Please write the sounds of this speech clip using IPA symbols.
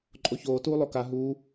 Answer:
ǃʼoçoː tuːlˠoka ɦuː

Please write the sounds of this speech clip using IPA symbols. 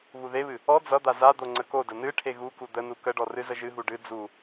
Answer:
βuðeβɨ | ɔ d͡zʌd̪a zad̪o ŋ͡ǀəkodə nɨ ʈʰeɣuku d̪ənu kəɖɔ rɨzəʒɨɦu ɖɨ d͡zu

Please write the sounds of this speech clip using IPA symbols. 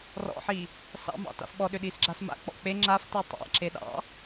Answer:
rɔ̰ħi | sɑ̰mɑ̰ta̰f ɓɔɗʏɗisɡ͡ǁas ma̰k͡pɔ̰ k͡pe ŋ͡ǁafti tˤa̰ǁe ɗɑ̰

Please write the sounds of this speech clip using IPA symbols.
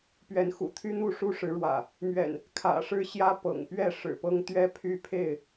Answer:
pɥɛ˨˦nxṵ˨˩ t̪ʰy˦n̪u˥˨ʂu˦ ʂɻ̩˨˦ɻwä̰˨˩ | mɥɛ̰˨˩n | kʰä̰˨˩ʂɻ̩˦ɕjä˦ pɤ̰˨˩ŋpɥɛ˥˨ ʂɻ̩˨˩pɤ˦ŋt̪ɥɛ˦pʰy˥˨ pʰe˥˨ɪ̯

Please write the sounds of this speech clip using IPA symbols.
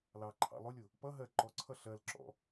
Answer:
lɑǃʰɑ̰ lˠʊlʲʊ | pʌ ɦɜ ǃɔǀʰʌ ɬɜlǁɔ̰

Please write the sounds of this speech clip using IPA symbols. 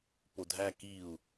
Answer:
podʱæ kiu̯

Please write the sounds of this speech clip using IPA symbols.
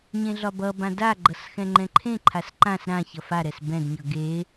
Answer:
ɲẽɮɒbʌbã daɡ͡ǃʌs xɛ̃ŋ͡ǃɛ̃ǃʰẽǃʰas ǃãs ɾã çʌfaɾɛs bɛ̃dɲʌ ɡe

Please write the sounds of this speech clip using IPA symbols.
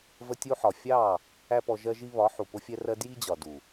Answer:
və˧tʲu˧ħɒ˨ fʲɑ˦˨ | æ˦pɔ˧ʒɜ˦ʒi˦ βɒ˨˦ħu˨ pʊ˦fʲɛ˦rɜ˦ dji˦d͡ʑɒ˨du˨

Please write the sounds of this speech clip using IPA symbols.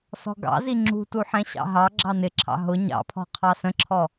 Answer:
sɔ̤ɡɑ̰zi ŋ͡ǁṳtu ħɛ̃ɕɑ̰ɦɑɡ͡ǁɑ nɪǁʰɑ̰ ɦʊ ɲɑ̰pʰɔ̤ qʰɑsə̃ǁʰɔ

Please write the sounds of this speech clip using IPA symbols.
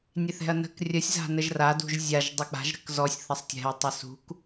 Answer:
nʲeθɛ̤ɐ̯nə̤k rʲəsʲ za̤nəʒra dṳʒzʲaʒ dˤɪk͡pa̤ʒ ɾə̤kzɔsʲ θɐsˤtʲɛ̤ɐ̯ tˤɪsṳk

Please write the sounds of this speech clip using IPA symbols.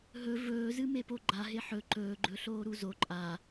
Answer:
ɦɵ vɵːzɨ mepoɡ͡ǃa ɦeħɵ ǃɵːɡ͡ǃɵ ɬoːɾuzo ǃʼa

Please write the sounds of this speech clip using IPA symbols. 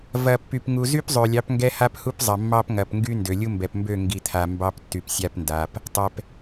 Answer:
vɐ˨pːy˨p ŋu˨zy˦pzˤø˨lʲɑ˨˦p ŋɡɛ˦ha˦phu˦pzˤɐ˨ mːɑ˦pŋɐ˨pŋɡy˦ ndø˨lʲu˦mbɛ˨pmbø˦˨ ŋɡi˨t̪ʰa˨ mbɑ˦ptːy˨psʲa˦pnda˨p | tˤɛ˨p

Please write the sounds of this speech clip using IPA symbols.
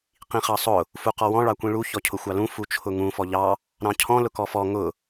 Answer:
qĩχɑsˤʊ | fuqɔwɔ̃ ɭɑkʷĩɭu çɔcʰʊxʷɑlũ fut͡ʃʰʊŋũ fɔʎɑ | ɾɑ̃cʰɔ̃ lʊkɔfɔ ŋʊ

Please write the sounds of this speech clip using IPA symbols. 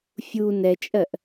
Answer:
fʲu nɛt͡ʃʼɜʔ

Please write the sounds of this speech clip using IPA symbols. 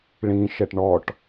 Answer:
ɭĩʃɛʈ ɳɔʈ

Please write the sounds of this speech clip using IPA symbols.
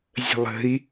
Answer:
zʲə̤lˠə̤i̯

